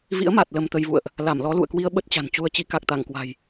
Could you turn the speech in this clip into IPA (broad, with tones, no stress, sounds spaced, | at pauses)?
v ḭ˧˥ ə̯ m a˨˩ t̚ l ə˧ m t̪ ə˧ j v ṵ˧˨ ə̯ ʔ | l a˧˩ m l ɔ˨˦ l ṵ˧˨ ə̯ k w i˧ ə̯ ɓ ə˦˥ t̚ t͡ɕ a̤˨˩ n t͡ɕ u˧ ə̯ t͡ɕ i˨˦ k a˨˩ k̚ t̪ a˧˩ ŋ k w a̤˨˩ j